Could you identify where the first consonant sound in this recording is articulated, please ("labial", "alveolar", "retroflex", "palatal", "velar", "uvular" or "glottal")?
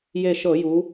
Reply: palatal